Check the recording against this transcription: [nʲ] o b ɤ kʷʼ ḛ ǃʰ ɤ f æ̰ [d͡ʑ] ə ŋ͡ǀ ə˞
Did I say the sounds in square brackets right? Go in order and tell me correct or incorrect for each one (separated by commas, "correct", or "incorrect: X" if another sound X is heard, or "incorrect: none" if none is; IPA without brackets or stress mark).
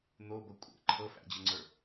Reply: incorrect: n̪, correct